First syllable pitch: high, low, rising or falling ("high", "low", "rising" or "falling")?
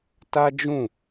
high